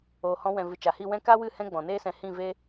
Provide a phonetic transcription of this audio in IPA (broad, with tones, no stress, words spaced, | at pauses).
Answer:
oː˨hɔ̃˧ wɛ̃˨vɨ˨ t͡ʃa˨hi˦˨ wɛ̃˦ ka˦wɨ˦˨ hɛ̃˦ɡ͡bɔ̃˨neː˦sɛ̃˧ hĩ˦˨ve˦